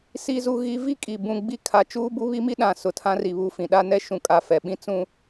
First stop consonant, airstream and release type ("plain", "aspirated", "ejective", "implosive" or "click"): ejective